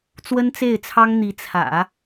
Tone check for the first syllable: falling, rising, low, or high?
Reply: high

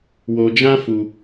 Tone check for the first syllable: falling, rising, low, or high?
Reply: high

